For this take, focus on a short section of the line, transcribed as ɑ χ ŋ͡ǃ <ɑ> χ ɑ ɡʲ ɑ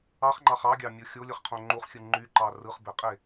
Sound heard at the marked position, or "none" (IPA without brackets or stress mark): ɑ